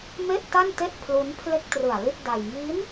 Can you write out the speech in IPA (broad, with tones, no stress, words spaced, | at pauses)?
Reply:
me˥˩ʔta˥˩nte˥˩ʔ pʰlu˦˥npʰle˥˩k̚trɯ˨˩a̯li˥˩t̚ da˧j ŋi˦˥n